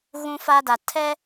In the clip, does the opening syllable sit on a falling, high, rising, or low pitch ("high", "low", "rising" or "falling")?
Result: high